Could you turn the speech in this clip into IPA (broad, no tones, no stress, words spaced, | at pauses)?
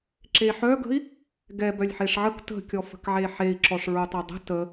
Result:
ǁeħœɡə̤i̯ | ɡɛb œlʲħeʂʕək tə̤kʲɔ fə̤kʕeħei̯ ǁɔʂɹotˤɛdˤə̤ tə